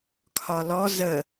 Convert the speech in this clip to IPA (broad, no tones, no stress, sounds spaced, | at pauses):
kʰ ɒ l ɔ z ə